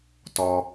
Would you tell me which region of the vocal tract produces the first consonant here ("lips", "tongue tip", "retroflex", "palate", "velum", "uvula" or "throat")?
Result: tongue tip